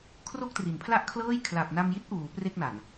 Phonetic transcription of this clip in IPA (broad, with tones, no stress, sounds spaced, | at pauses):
kʰ r o˥˩ k̚ t r i˩˦ n pʰ l a˥˩ ʔ kʰ l ɤː˥˩ j kʰ l a˨˩ p̚ n a˧ m j i˦˥ t̚ ʔ uː˩˦ p r e˥˩ k̚ n a˨˩ n